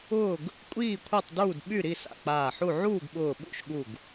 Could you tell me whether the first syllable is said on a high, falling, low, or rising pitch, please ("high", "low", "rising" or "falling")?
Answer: falling